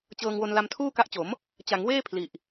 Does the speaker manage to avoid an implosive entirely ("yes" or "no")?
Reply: yes